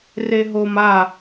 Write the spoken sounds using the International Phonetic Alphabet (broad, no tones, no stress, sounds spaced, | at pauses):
r e ɦ o m a